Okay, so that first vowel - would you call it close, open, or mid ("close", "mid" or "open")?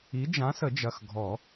close